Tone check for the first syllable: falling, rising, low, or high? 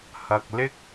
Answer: low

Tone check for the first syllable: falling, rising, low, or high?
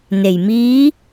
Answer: low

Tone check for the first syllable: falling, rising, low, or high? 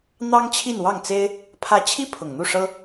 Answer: high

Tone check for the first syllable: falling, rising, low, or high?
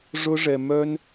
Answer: high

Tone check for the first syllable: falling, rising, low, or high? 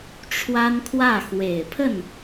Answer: high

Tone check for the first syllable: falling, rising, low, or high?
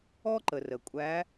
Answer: high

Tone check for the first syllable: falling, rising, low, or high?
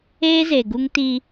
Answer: high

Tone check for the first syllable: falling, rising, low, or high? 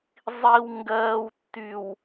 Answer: low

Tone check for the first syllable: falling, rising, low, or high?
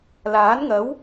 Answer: rising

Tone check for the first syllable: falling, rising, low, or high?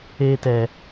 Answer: high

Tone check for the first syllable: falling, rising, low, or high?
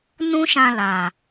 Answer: high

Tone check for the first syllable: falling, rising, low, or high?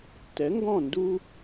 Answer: rising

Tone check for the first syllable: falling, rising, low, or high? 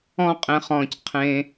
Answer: high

